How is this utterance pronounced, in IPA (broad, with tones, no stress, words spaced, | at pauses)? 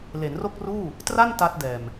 le˩˦nro˥˩k̚ruː˥˩ | tra˥˩n ta˦˥t̚ dɛː˨˩m